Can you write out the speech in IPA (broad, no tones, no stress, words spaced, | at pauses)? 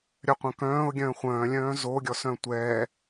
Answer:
ɾʲœqʷœ̃kœ̃ːʊ̯ ɡʲœ̃ːχʷœ̃ːlʲœ̃ː zoɡʲɔ sœ̃tʷɛː